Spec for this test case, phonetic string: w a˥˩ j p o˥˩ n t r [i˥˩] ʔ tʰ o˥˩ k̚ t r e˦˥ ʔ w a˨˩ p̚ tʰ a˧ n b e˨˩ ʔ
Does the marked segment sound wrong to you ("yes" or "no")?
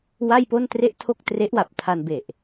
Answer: yes